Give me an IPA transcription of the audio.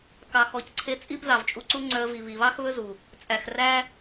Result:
kɑ˨xɔ˨cǀʰe˧ t͡sʼi˦b ðɑ˨vt͡ʃʼu˧ǀu˦ ŋ͡ǀœ˧ə̯vi˨ βi˨βɑ˦xβɵ˦zu˨ | t͡sʼæ˨xræ˦

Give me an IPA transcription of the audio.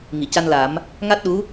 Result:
ŋi˨˩˨ca˧nla˨˩˦m | ŋa˦˥t̚ɗu˧˥

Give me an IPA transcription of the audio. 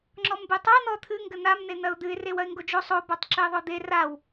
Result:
ŋ͡ǁɔmbetˤa n̪ɔt̪ʰɨ ŋɡɘn̪am n̪en̪ɐʊ̯d̪ɨɪ̯ rewɐɪ̯ŋɡod͡ʒo sˤo batˤǁɘɪ̯ðˤod̪e raw

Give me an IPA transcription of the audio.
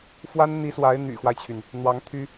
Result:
fwa˥nn̪i˧˥swa˧˥ɪ̯ n̪y̰˨˩xwa˦ɪ̯t͡ɕʰy˩n | n̪wɑ˧˥ŋt̪ʰy˥

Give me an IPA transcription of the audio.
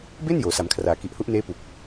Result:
be˥˩n joː˩˦sa˩˦mkʰraː˩˦ ki˨˩ʔhu˦˥ʔneː˦˥ pu˨˩k̚

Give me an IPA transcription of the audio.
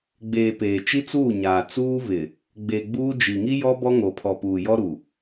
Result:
ɡ͡beː˨ peː˨t͡ʃi˦t͡suː˦˨ɲaː˨ t͡suː˦vɪ˨ | ɡ͡be˨ɡ͡buː˦d͡ʒi˨ ŋi˦jɔ˦ bɔ˦ ŋo˨pʰɔ˨puː˨jɔ˦ ɾu˨

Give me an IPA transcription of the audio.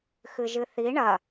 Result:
xɨʒɨθi ɳɐ

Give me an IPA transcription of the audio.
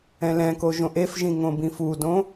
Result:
ɛ̃lɛ̃ko ʒõʔefʒĩ ŋõbĩfudõ

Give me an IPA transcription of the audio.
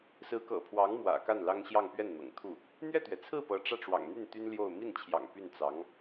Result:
sɹ̩˧˥kɤ̰˨˩pʰwɑ˧˥ŋ mwä̰˨˩ka˥˩nlɑ˥ŋɕjɑ˥˧ŋ pɥɛ˥˩nn̪ɤ̰˨˩ŋt̪ʰu˥˩ | n̪ɥɛ˥˩t̪ɥɛ˩t͡sʰɹ̩˥˩ pɤ˧˥ʈ͡ʂä˥˩ʈ͡ʂwɑ̰˨˩ŋn̪y˥˩n t̪y˥nljo˥˧ʊ̯ mi˥˩nt͡ɕʰjɑ̰˨˩ŋ py˥˩nt͡sɑ˧˥ŋ

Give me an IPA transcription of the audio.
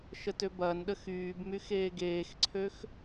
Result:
ʃətøbɐːnɗə xyːbmy xeːɡeːxǀʰøx

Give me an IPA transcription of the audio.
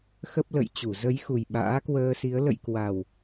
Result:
xə˦˥p̚lə̰˧˨j t͡ɕu˧˩zə˨˦jxu˨˩j ɓa̰ː˧˥kwəː˧si˨˦ə̯ lə̰˧˨jkwa˨˩w

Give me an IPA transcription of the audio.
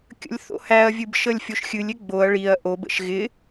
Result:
kʲə̰lʲθo̰hæɐ̯vʲɨb ʃəlʲfʲoʃxʲɨlʲɪ ɡ͡boɐ̯ ɭiɐ̯ ʔobə̰ʃ ɣɪ

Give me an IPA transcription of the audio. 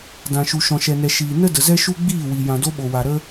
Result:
dã˨ʃu˨ʃɔ̃˨ ʃɛ˨nɛ˨ ʃiː˨ nə˦ də˨zɛ˦ʃu˦ ɡ͡biː˦˨wi˨ jã˨do˦ɓo˨wa˨ ɾə˦

